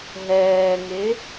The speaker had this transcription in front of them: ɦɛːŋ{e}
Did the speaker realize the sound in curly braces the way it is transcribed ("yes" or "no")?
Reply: yes